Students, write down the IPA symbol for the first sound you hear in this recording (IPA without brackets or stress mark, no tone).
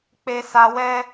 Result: k͡p